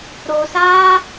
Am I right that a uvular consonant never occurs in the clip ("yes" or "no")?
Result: yes